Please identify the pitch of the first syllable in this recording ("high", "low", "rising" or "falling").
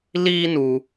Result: high